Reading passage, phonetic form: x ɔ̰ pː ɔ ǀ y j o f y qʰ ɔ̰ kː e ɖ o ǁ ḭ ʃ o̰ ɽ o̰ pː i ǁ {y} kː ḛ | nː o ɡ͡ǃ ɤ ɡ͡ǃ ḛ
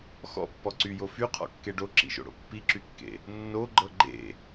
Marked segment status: correct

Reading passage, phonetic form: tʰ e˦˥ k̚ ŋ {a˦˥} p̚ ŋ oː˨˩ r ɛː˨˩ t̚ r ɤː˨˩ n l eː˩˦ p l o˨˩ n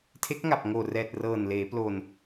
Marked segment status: incorrect: a˨˩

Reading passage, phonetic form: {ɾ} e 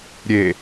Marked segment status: incorrect: ɾʲ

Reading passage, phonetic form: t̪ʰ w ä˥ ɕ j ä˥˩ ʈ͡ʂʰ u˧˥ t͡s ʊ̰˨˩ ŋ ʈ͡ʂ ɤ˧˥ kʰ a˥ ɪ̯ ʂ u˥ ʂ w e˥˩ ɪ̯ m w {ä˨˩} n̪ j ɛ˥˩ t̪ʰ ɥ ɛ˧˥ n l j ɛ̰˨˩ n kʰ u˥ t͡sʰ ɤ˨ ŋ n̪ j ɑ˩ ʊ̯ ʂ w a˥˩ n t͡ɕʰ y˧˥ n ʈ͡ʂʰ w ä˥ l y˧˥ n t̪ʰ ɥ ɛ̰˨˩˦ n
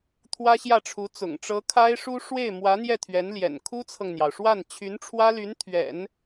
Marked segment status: incorrect: ä˧˥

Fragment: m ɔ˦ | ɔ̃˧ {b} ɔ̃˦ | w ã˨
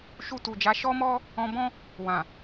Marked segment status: correct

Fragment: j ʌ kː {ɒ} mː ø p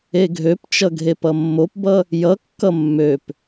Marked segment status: incorrect: ʌ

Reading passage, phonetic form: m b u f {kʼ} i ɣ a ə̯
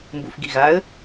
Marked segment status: incorrect: ɡ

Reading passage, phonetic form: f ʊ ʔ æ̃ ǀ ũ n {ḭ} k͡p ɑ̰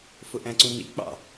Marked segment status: correct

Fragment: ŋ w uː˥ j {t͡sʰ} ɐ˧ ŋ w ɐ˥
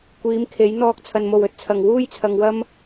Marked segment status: correct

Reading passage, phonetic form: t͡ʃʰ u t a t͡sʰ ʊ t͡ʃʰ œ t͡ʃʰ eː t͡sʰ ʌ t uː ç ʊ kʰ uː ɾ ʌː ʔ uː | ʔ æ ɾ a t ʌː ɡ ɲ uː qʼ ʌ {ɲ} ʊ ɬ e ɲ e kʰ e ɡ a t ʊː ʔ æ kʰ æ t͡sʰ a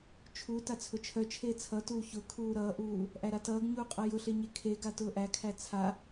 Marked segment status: incorrect: j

